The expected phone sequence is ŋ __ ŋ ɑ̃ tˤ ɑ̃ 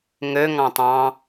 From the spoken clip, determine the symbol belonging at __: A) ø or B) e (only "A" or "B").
A